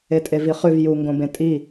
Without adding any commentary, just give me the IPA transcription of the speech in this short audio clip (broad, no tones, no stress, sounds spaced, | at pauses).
e tʼ e v i χ ʉ v j u ŋ ɡ õ b ẽ tʼ i